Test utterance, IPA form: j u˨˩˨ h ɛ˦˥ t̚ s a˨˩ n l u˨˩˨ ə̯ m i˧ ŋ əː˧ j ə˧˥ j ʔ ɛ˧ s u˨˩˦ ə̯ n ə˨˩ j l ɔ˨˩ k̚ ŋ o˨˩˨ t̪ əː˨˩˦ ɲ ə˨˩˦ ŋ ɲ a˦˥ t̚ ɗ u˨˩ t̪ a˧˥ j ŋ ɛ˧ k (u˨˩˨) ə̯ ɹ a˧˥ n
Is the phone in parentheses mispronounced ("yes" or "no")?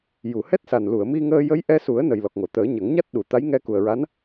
yes